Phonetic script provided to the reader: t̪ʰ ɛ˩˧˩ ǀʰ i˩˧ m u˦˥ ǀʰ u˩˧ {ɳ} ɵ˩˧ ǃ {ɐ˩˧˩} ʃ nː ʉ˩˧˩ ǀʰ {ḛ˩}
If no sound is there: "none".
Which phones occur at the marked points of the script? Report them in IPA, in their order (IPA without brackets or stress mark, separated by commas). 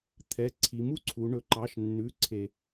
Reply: ɳ, ɑ˩˧˩, e˩